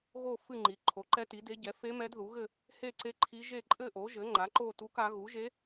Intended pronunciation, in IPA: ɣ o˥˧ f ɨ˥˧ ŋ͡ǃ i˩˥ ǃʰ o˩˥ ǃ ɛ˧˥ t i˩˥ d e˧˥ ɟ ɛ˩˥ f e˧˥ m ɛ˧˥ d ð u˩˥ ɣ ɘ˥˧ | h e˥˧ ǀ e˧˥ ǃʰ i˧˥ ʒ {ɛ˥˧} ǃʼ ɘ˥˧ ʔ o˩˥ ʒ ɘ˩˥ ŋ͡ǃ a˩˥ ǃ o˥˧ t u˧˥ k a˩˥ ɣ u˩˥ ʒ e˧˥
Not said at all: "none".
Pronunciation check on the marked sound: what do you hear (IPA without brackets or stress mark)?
e˥˧